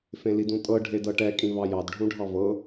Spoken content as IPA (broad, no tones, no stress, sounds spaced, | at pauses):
f ẽ l i d ũ tʼ ɤ ɖʱ e d ɤ ʈ ɛ kʼ ĩ v ɑ j ɑ d ɖʱ ũ ɖʱ ɑ v ɤ